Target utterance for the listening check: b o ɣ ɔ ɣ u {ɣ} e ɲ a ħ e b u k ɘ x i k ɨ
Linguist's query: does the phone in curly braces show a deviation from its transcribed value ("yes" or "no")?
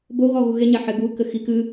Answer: no